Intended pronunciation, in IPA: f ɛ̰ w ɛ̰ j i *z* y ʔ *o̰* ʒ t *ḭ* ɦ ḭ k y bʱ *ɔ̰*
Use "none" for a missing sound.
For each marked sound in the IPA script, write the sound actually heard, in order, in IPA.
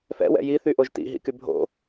θ, o, ḭ, o̰

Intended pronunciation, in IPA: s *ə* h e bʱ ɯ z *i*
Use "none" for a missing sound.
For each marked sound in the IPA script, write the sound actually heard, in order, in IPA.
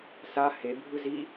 a, i

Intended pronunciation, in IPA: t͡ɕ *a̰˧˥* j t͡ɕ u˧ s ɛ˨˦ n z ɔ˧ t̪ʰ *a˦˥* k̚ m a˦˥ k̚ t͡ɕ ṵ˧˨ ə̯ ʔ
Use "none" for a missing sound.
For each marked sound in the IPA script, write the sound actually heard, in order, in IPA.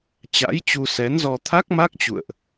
a̰˧˥, a˦˥

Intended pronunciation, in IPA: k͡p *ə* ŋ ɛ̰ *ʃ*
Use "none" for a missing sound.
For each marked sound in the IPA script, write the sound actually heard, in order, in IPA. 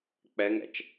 ɛ, t͡ʃ

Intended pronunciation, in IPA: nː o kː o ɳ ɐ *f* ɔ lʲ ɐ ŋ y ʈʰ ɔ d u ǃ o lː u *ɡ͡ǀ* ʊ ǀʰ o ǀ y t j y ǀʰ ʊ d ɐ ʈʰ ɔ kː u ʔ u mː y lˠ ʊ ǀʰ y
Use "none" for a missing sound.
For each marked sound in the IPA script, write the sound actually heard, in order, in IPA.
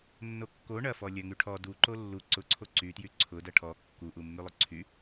f, ǀ

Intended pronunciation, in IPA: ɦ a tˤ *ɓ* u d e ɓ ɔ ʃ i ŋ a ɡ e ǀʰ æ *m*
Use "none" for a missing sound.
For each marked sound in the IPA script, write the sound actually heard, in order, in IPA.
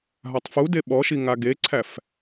f, f

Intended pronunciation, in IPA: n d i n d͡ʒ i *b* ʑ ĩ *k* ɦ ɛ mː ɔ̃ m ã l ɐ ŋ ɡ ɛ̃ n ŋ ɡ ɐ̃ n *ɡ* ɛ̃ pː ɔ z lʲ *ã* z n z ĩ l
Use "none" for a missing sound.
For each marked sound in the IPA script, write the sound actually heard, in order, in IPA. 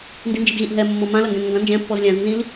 b, ʔ, d͡ʒ, ã

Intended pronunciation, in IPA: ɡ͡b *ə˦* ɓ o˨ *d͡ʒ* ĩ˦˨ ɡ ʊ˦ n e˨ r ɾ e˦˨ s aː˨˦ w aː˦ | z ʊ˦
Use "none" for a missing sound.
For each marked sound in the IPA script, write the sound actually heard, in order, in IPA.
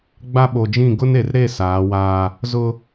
a˦, d͡ʒ

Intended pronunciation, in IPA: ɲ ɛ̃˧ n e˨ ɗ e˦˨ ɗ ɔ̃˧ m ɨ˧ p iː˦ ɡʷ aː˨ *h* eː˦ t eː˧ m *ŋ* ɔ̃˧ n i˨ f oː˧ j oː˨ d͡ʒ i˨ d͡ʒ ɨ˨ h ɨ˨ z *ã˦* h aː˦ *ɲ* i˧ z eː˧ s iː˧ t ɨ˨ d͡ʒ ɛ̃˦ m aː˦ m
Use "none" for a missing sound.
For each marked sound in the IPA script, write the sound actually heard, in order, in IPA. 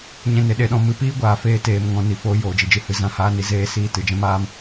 f, ŋ, ã˦, n

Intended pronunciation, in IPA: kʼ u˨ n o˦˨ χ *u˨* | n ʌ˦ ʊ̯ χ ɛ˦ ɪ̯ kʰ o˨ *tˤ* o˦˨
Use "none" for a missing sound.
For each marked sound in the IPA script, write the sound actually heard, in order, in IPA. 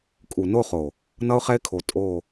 o˨, tʼ

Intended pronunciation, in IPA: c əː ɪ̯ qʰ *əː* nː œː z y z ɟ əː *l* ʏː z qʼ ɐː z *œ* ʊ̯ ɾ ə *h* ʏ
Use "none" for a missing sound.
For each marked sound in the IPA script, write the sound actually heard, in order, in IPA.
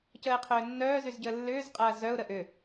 ʏː, lː, œ, ʔ

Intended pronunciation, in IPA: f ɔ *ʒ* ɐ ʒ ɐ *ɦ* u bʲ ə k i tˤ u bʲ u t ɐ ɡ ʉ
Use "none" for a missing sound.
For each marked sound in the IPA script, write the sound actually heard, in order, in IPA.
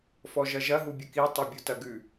ʒ, ɦ

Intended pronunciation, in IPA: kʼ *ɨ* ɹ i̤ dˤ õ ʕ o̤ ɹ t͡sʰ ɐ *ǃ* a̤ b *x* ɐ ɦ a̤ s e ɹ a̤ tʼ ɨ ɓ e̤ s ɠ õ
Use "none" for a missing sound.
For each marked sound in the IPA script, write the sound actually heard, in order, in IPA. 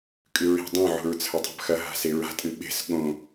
ɨ, tˤ, x

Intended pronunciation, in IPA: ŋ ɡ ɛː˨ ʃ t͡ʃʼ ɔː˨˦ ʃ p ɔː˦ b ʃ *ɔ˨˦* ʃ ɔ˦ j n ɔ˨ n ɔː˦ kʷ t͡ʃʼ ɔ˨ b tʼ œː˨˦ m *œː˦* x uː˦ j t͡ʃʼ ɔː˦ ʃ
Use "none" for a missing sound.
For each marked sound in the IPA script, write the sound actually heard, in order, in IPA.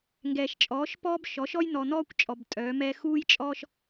ɔ˨˦, ɛː˦

